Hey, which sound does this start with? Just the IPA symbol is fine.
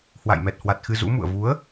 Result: h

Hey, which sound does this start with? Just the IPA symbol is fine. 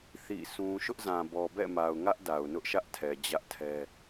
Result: θ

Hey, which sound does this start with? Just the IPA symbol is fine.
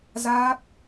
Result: z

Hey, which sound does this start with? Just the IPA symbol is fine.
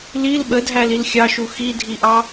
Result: l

